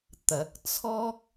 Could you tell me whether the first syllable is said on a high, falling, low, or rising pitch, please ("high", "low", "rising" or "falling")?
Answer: rising